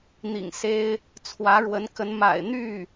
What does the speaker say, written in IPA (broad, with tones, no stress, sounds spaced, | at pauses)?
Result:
n̪ ḭ˨˩ ŋ s e˥ ɪ̯ | t͡sʰ w ä˧˥ ɻ w ə˧˥ n k ə˧˥ n m a̰˨˩ ɪ̯ n̪ y˥˩